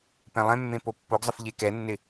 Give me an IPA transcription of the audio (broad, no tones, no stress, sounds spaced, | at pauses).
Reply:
p ɛ̃ lˠ ɛ̃ mː ẽ p o pː o ɡ zˤ ə f ʎ e k ɛ nː ɪ